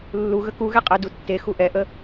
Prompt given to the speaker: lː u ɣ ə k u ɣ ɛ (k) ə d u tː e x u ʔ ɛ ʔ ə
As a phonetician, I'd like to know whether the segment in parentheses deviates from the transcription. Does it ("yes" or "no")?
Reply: yes